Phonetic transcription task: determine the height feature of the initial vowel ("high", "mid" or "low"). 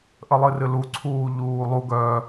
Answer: mid